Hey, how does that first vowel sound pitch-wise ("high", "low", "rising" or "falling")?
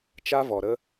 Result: high